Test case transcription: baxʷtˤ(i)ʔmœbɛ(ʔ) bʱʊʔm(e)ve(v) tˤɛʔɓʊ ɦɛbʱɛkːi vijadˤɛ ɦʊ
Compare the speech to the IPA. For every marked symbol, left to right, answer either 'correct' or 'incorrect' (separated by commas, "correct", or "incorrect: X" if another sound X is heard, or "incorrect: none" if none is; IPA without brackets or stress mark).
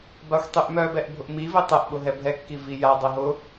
incorrect: y, correct, incorrect: i, incorrect: none